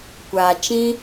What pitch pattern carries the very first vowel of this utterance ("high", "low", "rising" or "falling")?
low